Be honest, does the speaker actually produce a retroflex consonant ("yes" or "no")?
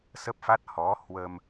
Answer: no